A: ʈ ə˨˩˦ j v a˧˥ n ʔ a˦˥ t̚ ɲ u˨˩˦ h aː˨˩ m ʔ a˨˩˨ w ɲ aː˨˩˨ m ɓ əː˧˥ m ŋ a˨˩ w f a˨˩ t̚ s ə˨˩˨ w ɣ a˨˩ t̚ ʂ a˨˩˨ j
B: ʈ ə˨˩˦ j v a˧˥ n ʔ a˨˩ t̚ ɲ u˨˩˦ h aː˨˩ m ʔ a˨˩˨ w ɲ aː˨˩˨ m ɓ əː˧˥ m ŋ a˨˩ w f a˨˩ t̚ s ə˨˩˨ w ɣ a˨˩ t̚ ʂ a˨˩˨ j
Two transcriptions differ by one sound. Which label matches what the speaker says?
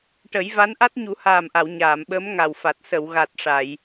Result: A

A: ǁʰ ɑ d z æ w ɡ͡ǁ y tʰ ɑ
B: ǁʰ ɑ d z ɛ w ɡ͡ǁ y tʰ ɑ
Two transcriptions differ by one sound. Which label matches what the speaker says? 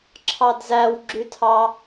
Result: A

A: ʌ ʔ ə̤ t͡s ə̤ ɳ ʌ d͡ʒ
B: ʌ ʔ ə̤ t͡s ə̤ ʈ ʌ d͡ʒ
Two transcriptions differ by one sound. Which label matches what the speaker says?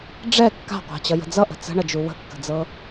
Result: A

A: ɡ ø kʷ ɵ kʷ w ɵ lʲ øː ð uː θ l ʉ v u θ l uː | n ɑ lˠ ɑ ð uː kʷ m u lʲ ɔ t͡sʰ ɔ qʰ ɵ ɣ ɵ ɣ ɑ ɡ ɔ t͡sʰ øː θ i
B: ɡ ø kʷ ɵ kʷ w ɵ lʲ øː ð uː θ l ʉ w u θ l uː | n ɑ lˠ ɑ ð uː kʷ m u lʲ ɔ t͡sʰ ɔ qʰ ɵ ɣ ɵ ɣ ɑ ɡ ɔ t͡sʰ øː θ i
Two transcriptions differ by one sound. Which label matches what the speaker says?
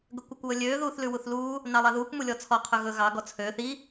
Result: B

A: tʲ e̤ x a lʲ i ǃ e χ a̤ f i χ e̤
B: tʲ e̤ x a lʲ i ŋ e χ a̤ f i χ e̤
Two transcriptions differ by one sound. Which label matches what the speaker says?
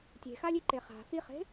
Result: A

